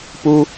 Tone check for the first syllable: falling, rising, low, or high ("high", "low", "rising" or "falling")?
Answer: high